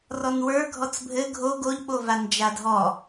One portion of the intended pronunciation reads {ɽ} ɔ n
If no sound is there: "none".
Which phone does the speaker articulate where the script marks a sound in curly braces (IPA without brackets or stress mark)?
r